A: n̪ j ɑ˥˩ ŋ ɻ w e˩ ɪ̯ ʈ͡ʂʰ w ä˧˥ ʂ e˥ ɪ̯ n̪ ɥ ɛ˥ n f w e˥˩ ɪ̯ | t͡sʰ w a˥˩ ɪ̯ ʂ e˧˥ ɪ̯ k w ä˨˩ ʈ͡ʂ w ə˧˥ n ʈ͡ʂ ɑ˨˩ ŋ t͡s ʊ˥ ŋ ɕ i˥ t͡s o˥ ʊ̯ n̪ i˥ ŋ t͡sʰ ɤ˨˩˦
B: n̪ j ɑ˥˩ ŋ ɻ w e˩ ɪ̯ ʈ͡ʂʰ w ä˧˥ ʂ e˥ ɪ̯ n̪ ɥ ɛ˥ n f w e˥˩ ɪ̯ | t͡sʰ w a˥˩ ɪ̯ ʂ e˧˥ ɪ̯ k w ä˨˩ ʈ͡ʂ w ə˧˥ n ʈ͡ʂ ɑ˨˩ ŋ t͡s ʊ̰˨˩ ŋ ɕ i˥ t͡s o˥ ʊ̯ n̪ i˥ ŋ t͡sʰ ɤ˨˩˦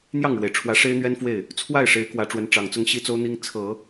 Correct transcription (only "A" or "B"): A